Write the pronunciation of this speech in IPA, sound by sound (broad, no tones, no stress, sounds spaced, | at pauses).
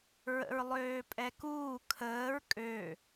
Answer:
ɹ ə̰ ɹ lˠ øː pʼ ɛ k uː kʰ əː ɹ kʼ ø